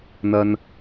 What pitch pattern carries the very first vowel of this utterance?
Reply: high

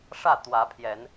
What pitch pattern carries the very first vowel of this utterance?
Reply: falling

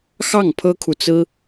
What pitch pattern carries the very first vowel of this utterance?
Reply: falling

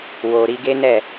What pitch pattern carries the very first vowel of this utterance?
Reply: low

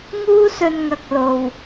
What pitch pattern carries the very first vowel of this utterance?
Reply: high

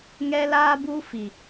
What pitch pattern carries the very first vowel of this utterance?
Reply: high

